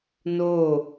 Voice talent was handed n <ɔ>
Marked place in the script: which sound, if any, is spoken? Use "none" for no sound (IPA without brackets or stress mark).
o